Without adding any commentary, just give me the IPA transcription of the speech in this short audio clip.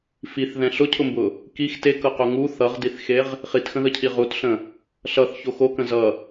fiθðɛ̃ ɬʊcʰʊmbʊ | kix tekɤqo ŋu θʌʁdiθxeʁ | χitxə̃ðəcʰi ʁutɬə̃ | ɬʌθço xokə̃ zʌ

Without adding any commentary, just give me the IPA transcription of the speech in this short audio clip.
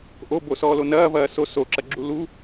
ʔobosɔːlo nɐːvɐː so soǁɐɡ͡ǁu lu

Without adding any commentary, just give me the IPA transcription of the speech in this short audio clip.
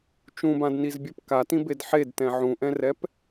t͡ʃũbãdnizbʲɜp katĩbed ħedtɛ̃ ʕũʔɛ̃rɛp

